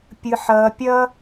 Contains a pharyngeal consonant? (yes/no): yes